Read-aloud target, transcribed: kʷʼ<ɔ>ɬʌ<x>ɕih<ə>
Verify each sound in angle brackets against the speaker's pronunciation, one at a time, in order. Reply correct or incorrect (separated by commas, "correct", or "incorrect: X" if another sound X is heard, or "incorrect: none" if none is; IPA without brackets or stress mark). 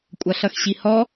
incorrect: ʌ, correct, incorrect: ɔ